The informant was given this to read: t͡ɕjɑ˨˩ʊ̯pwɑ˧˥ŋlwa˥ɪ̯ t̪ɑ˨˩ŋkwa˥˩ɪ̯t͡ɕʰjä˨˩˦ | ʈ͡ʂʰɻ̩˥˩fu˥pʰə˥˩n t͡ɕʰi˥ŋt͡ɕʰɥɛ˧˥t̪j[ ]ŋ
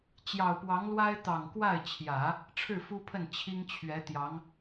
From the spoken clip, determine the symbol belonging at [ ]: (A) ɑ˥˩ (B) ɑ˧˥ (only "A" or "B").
B